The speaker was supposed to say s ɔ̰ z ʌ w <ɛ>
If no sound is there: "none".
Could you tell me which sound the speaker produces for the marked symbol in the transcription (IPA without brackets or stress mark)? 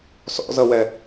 ɛ